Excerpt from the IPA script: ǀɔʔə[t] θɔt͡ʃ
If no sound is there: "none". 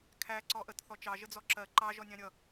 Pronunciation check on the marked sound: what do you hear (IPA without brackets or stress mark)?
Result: t